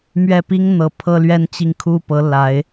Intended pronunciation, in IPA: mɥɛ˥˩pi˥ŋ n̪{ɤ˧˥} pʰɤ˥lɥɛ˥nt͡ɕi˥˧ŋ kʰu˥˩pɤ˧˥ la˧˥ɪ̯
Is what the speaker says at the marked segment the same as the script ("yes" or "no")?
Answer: no